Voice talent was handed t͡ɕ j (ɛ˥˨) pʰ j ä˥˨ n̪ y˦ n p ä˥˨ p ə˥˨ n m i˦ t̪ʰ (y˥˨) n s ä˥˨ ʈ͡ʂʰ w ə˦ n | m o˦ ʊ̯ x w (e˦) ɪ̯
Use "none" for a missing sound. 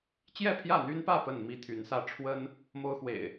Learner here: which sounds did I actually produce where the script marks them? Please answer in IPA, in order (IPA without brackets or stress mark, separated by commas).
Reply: ɛ˥˨, y˨˦, ḛ˨˩